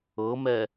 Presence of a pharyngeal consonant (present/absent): absent